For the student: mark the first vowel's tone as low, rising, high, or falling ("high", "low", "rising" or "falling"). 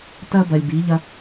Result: high